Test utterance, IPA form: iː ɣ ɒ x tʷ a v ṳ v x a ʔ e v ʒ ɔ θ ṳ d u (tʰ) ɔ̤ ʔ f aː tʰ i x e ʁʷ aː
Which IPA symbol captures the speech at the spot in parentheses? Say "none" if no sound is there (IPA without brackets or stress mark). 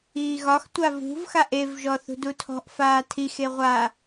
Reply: tʰ